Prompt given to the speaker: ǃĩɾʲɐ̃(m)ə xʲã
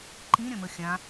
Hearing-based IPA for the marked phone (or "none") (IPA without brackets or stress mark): m